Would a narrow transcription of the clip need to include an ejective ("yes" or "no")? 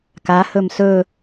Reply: no